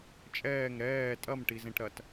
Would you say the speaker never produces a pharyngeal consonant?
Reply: yes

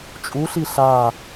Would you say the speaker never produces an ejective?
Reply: no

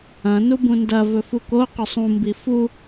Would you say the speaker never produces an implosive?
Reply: yes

